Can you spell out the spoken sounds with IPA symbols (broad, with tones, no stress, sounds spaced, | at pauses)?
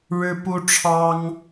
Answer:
ɻ ɻ̩˥ p u˥ ʈ͡ʂʰ ɑ˥ ŋ